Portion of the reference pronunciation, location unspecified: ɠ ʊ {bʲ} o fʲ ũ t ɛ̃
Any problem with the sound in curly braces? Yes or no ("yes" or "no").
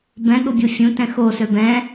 no